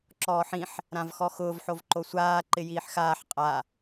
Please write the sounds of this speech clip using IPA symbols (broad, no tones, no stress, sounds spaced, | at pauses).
ǁ ɔː ħ ĩ ħ | ɾ ã v x ɔ x ʊː v ħ o v ǃ o sʷ aː ǃ ɪ j iː ħ x aː ħ qʼ a